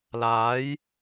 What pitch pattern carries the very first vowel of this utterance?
rising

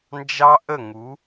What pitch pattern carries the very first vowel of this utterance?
high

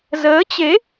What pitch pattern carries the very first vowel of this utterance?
rising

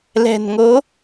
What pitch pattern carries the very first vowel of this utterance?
low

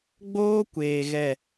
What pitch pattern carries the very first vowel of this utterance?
high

